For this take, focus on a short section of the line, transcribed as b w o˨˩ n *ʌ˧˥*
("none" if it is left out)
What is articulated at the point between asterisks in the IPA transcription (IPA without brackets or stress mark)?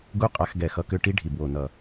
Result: ʌ˨˩